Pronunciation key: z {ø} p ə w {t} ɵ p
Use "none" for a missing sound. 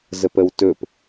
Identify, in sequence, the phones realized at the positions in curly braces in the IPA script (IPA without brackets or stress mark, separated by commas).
ə, t